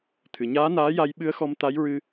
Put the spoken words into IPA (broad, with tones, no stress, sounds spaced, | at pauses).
t̪ʰ ɨ˨˩˨ ɲ aː˧˥ n aː˧˥ j a˧ j ɓ ɨ˧˥ ə̯ x ɔ˧ m t̪ a˧˥ j ɹ ɨ˧